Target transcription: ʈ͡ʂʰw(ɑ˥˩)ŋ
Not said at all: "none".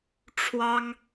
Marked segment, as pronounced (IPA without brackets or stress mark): ɑ˥